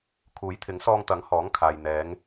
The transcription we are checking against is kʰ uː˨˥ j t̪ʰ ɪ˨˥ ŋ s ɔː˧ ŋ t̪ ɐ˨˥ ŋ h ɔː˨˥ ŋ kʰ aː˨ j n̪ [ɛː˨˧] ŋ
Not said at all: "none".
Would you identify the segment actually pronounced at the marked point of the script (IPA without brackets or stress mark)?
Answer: ɛː˨˧